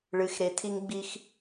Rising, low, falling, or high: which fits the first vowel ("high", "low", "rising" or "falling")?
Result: low